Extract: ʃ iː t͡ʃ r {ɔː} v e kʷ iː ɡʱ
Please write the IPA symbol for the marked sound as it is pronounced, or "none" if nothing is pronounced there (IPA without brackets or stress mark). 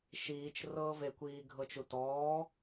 ɤː